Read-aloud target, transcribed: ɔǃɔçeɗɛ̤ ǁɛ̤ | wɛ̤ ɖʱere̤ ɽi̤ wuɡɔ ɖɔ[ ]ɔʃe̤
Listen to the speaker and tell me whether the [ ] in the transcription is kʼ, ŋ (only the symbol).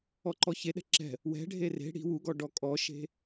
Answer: kʼ